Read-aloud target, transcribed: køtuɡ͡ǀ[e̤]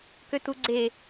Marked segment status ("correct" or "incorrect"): incorrect